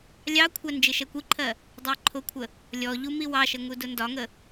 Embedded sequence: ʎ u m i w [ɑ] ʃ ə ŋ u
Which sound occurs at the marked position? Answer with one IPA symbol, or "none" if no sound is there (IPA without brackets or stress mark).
ɑ